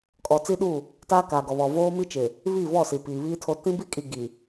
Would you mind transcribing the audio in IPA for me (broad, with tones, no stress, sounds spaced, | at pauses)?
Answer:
kʼ ɔ˨ t͡s i˦ ɗ u˦˨ | t aː˦ k aː˨ ɡ ɔ˨ β ɔ˨ v oː˦ m i˦ t͡ʃ ɪ˨ | β i˦˨ v ɔ˦˨ s i˨ p iː˨ β iː˦ tʰ o˦ t ĩ˦ b i˦ kʼ i˨ ɡ i˨